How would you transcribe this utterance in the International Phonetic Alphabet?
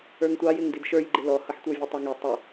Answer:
ə˞ ŋ tʷ ɑ j ɪ ŋ d i d ʃ ə˞ j ɡ͡ǃ ɪ l ɔ h ʌ ħ tʷ ə˞ vʲ u tˤ ə ŋ i tˤ ʊ

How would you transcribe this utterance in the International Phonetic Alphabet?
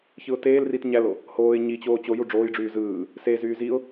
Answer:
ç ɯ ʊ̯ t eː l r i t ɲ æ l o | h oː ɪ̯ ɲ i t͡ɕ oː t͡ɕ o j u ɖ͡ʐ oː j ɖ͡ʐ yː z ɯː | s e z yː z i ʊ̯

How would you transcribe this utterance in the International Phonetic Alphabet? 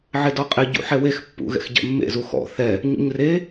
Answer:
ʕ ɪ d ɔ qʼ ɪ ɟ ṵ ħ ɛ w e x pː ṵ ɣ ɛ̰ x ɟ ɛ̰ mː ḛ z u x ɔ̰ θ ɛ | ɲ ṵ ɲ r e

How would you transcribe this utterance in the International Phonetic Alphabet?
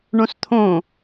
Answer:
ɳ õ s t̪ʰ õ

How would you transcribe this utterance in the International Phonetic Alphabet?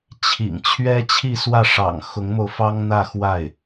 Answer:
t͡ɕʰ ḭ˨˩ ŋ t͡ɕʰ ɥ ɛ˥ t͡ɕʰ i˥˧ s w ä˥˩ ʂ ɑ̰˨˩ ŋ x ʊ˧˥ ŋ m o˧ ʊ̯ f ɑ˥ ŋ n̪ ä˥˧ x w a˥˩ ɪ̯

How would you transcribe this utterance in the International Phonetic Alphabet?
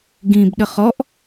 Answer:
ɡ ĩ b ɗ ə χ ɔ ʔ

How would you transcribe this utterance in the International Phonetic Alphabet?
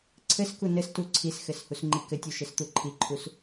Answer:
ǀʰ ɘ s k u n ɘ s t u ǀʰ i s x ɘ s h u s ŋ͡ǃ i k ɘ tʲ u ʃ ɘ s t̪ u ǃʰ i ǃʰ u s

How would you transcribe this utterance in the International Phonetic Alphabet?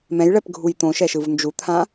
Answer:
m ɛ̃ j ɭ ɛ p ɡʱ u j t̪ õ ʃ ɛ ʃ ɯ v n d͡ʒ u t̪ʰ ã

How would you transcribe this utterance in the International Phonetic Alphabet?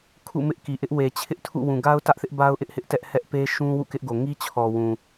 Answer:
kʰ ṵ˦˨ m ɪ˦ ʔ k i˨ ʔ ɪ˦ ʔ w e˨ t͡ɕʰ ɪ˦ ʔ tʰ ṵ˦˨ w ũ˨ ɡ a˦ ʊ̯ t ä˦ ʔ θ ɪ˦ ʔ b a˦ ʊ̯ ʔ ɪ˦ ʔ h ɪ˦ ʔ t ɛ˦ ʔ h ɛ˦ ʔ p e˦ ʃ ũ˦ w ṵ˦˨ k ɪ˦ ʔ ɡ o˨ ŋ i˦ t͡ɕʰ ɔ˨ w ũ˨

